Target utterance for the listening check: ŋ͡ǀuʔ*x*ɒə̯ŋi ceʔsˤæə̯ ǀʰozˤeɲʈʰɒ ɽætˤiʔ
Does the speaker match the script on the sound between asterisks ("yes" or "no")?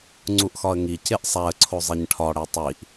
yes